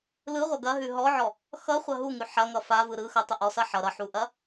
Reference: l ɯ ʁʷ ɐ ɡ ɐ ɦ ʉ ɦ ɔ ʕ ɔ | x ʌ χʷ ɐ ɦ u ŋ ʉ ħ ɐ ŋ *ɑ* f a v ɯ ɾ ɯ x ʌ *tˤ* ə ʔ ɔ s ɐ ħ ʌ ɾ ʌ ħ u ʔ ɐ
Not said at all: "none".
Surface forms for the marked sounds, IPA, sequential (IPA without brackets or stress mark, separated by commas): ʌ, tˤ